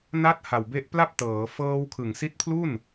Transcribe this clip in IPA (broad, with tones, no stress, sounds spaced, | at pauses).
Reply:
n a˦˥ t̚ h a˨˩ w b e˦˥ ʔ p l a˥˩ p̚ t ɤː˩˦ f ɤː˧ w kʰ ɯ˨˩ ŋ s i˦˥ t̚ pʰ l u˥˩ n